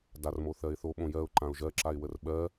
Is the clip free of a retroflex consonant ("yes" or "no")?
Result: yes